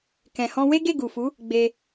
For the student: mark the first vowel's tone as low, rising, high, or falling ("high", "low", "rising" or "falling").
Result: low